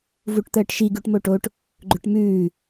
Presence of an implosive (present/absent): absent